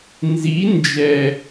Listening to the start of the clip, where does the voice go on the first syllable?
rising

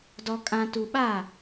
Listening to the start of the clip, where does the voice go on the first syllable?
low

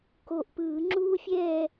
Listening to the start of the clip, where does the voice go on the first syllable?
low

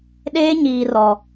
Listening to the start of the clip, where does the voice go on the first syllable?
high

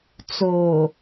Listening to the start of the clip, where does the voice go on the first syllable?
low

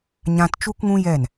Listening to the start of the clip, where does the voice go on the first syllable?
high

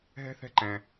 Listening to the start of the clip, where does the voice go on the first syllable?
high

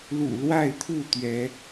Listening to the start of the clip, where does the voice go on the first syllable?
low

